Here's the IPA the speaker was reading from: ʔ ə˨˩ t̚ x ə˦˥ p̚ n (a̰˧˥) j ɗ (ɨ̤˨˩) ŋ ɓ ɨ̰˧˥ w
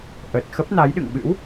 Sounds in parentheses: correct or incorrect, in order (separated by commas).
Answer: incorrect, incorrect